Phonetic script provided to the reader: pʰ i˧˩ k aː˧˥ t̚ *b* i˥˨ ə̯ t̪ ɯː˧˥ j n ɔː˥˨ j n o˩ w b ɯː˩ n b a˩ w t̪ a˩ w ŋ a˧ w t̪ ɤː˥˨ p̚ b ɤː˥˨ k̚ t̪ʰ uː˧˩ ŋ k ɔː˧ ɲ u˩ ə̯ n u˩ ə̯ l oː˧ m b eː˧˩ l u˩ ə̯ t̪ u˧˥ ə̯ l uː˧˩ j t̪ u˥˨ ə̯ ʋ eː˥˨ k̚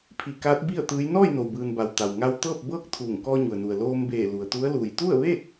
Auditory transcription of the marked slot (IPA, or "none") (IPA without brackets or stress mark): b